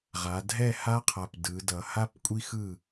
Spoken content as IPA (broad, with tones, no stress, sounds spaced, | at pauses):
ʁ a˩˧ dʱ ɛ˥˨ h a˦ qʰ a˨˩ p d ɯ˩˧ d ʌ˩˧ h a˦ p kʷʼ i˦ x ɯ˥˨